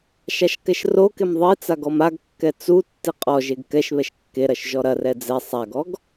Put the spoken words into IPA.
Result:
ʃ a ʃ k ɛ ʃ r o k e m ðˤ i t͡s a ɡ ɔ m a ɡ kː ɛ t͡s u tː i qʼ ɔ ʒ e ɡ k ɛ ʃ β ɛ ʃ kː e ɾ ɐ ʃ ʒ ɔ ɾ ɐ r ɛ d͡z ɛ sˤ a ɡ ɔ ɡ

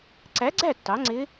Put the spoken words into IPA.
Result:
ǀ æ˩˥ ɡ͡ǀ æ˥˩ tː ɑ˩˥ ŋ͡ǀ ɪ˧˥

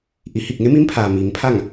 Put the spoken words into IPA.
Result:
ʔ i˩˧ h i˧˩ k̚ ŋ e˧˥ m i˧˥ m pʰ aː˩ m iː˩˧ ŋ pʰ a˥˨ ŋ

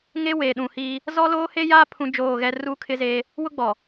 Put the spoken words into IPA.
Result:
ŋ e˦ w eː˨ ɗ ũ˨ h iː˦ | z ɔ˦ l oː˦ h e˦ j aː˦ pʰ ũ˦ d͡ʒ oː˦˨ ɣ ɛ˦ r u˦ kʰ ɪ˦ z eː˦ | w ʊ˦ ɡ͡b ɔ˨

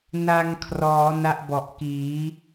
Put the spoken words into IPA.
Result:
n a˧ ŋ kʰ r ɔː˩˦ n a˥˩ ʔ b ɔ˨˩ ʔ k iː˩˦

